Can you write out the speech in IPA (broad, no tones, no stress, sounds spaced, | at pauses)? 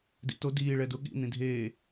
d ḭ t o d iː ɭ ɛ d ʊ ɠ ḭ n̪ ĩ dʱ eː